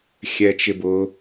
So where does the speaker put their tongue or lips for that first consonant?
velum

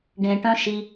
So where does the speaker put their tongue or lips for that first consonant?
retroflex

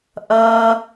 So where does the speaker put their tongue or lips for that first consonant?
throat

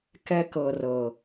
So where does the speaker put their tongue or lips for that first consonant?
velum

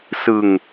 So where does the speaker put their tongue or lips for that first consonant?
tongue tip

